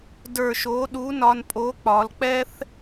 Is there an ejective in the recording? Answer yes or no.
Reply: yes